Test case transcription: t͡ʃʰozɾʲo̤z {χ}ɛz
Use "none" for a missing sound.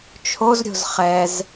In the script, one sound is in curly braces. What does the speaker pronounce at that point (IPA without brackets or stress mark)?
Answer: χ